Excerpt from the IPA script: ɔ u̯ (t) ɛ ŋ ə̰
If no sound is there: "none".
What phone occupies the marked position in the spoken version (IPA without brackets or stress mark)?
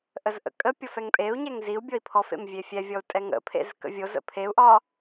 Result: tʼ